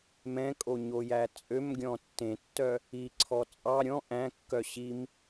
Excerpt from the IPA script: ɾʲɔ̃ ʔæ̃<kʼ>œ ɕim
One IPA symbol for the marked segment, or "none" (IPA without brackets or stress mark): kː